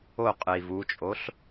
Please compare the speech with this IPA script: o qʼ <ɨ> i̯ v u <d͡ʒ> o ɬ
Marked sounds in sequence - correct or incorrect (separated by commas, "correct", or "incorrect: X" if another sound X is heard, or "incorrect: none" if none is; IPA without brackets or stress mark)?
correct, incorrect: t͡ʃʼ